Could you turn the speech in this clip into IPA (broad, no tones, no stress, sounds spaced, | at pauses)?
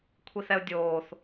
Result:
kʷʰ i θ ɛ ʊ̯ dʲ oː θ